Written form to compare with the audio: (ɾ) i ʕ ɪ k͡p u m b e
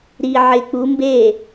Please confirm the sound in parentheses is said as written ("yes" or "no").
yes